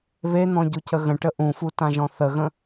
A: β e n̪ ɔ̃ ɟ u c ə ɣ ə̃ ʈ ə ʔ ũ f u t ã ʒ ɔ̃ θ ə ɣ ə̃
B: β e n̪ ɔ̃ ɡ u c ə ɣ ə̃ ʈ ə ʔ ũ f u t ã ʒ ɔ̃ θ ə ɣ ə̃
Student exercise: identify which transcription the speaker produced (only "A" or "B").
A